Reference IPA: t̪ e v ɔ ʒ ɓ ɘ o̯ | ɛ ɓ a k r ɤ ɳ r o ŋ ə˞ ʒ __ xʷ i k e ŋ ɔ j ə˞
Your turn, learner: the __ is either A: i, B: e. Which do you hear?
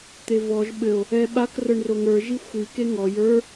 A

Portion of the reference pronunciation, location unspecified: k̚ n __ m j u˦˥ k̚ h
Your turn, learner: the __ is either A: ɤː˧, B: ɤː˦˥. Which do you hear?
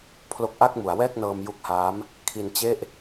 A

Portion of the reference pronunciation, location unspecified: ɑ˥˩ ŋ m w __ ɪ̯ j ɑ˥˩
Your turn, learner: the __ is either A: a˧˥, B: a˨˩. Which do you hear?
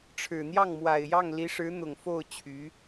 B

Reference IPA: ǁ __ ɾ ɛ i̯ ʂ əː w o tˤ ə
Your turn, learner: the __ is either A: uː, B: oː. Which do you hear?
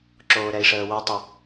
B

